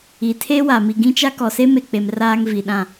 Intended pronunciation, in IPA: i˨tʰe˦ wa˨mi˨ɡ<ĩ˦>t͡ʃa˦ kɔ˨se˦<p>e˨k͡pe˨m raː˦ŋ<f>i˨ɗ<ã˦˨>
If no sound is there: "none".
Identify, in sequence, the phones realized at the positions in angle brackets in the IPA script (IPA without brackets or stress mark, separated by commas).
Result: ĩ˦, m, v, ã˦˨